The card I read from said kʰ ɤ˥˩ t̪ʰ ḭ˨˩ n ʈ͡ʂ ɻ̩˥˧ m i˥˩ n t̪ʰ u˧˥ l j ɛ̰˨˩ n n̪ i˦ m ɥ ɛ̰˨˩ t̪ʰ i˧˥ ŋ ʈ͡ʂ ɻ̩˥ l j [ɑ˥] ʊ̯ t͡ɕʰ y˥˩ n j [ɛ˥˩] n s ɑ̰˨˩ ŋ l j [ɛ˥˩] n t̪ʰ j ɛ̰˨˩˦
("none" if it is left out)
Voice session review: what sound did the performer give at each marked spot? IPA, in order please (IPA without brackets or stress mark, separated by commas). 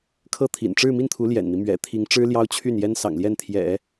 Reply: ɑ˥, ɛ˥, ɛ˥˩